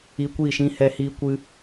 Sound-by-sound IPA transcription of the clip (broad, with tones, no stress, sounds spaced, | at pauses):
i˧ kʷ iː˦˨ ʃ ĩ˦ h ɛ˧ h iː˧ kʷ ɨ˧